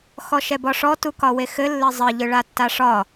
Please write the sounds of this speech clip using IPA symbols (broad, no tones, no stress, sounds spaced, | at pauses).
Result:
x ɔ ʃ ɛ b ɒ ʂ ɔ t u k ɒ w e x ɘ lː ɘ zˤ ɘ ʎ ɯ ɭ a tː a ʂ ɒ